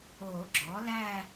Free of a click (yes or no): no